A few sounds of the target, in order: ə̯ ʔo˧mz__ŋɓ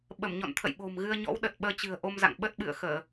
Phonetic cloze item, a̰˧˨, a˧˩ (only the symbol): a̰˧˨